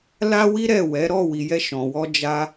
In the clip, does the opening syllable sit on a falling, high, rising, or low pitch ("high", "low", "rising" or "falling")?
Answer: high